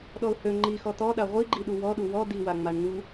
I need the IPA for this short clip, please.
ɗ ɔ ʊ̯ h ø ŋ͡ǃ i x ɔ t̪ ɔ ɗ a ʁʷ i ɡ͡ǃ i ɗ u w ɔ ɗ u w ɔ d̪ i w a ŋ͡m a ɳ ŋ u

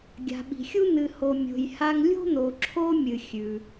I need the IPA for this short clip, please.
ɡʲ a̤˩ ɓ i̤˩ xʲ u˥ n̪ ɨ˨ h o˨ mʲ o̤˨ j h a˦ ŋ lʲ o̤˥ n̪ o˨ ǁʰ o˦ mʲ ɨ˨ xʲ ʉ˩

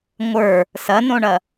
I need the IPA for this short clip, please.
ŋʷ ə˞ | s ɐ n õ ɳ ɐ

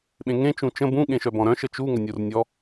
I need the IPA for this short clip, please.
ɓ ẽ ŋ ẽ t͡ʃ ũ t͡ʃ ə̃ b ũ ɠ ẽ ʃ œ b ɔ̃ ɾ œ̃ ʃ ə t͡ʃ u ŋ ə nʲ u r nʲ ɔ

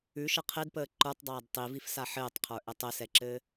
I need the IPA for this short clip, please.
ʉ ʃ ə qʰ e d p əː ǃ ə˞ tˤ dˤ aː d tˤ i v i f s a ħ ɘː tˤ qʰ ə˞ ʔ ɛ tˤ ɘ s ɛ ǁ ɘː

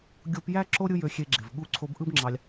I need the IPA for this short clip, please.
ɡʲ o˧ p j æ˦ ǁ o˦ ɾʲ ɯ˦ j ø˧ xʲ e˧ ɡ͡ǁ e˨ v ɠ u˧ ǀʰ o˧ b ʔ ɯ˦ b ŋ͡ǁ ɑ˧ lʲ

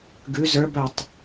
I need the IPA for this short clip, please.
ɡ ʉ z ə˞ b œ tˤ

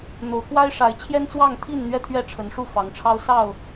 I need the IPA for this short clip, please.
n̪ o˨˦ ʊ̯ k w a˦ ɪ̯ ʂ a˨˦ ɪ̯ t͡ɕʰ j ɛ˦ n t͡s w ɑ˥˨ ŋ t̪ʰ i˥˨ n n̪ ɥ ɛ˥˨ t̪ʰ ɥ ɛ˥˨ ʈ͡ʂʰ ə˨˦ n ʂ u˥˨ f ɑ˨˦ ŋ ʈ͡ʂʰ ɑ˦ ʊ̯ s ɑ˥˨ ʊ̯

